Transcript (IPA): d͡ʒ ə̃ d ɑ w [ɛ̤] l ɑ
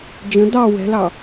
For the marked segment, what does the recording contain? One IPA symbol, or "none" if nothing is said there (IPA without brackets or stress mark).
ɛ̤